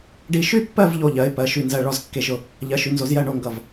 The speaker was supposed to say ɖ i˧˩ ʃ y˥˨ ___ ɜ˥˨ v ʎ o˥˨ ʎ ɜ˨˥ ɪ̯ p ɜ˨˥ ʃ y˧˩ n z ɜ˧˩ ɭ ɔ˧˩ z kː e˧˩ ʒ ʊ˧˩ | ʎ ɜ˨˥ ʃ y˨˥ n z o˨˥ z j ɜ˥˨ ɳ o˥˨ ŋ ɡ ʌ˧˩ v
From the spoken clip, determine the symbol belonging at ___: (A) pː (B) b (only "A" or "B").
A